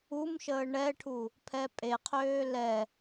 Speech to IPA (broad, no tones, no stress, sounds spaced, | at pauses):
u m ʃ əː ɳ ɛ ʈʰ u | pʰ ɛ pʼ e qʰ øː l ɛ